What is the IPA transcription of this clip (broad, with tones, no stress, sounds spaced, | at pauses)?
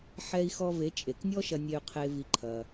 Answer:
ħ ɛ˧ i̯ x ɔ˧ v e˨˦ t͡ʃʼ e˨ k nʲ ɔ˦ ʃ ɐ˧ nʲ e˧ y̯ qʰ e˧ v i˧ ǃʰ ɐ˧